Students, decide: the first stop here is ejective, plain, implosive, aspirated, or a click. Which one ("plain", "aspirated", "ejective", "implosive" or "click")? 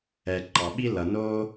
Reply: click